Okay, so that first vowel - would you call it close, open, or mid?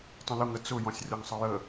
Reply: mid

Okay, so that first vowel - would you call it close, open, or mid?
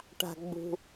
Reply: open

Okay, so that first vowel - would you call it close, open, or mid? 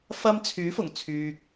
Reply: open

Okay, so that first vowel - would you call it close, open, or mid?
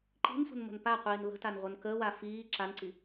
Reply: close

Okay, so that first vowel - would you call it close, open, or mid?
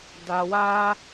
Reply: open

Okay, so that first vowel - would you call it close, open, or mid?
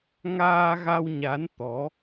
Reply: open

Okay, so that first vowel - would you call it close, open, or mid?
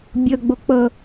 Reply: mid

